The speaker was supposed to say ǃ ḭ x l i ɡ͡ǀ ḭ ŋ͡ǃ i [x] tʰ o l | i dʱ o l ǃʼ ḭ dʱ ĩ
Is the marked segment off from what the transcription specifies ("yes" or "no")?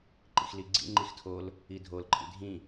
no